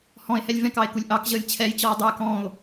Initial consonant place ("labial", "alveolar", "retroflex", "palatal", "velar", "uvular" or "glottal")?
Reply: glottal